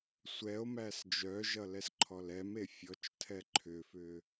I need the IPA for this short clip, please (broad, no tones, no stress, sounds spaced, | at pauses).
sʷ ɛ o̯ m æ s d͡ʒ œ ʒ ʌ l ɛ s ǃʰ ɔ l ɛ m e fʲ ɔ t͡ʃ tʰ ɛ ǃʰ ʏ f ʏ